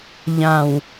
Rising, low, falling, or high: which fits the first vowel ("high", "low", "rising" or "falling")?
low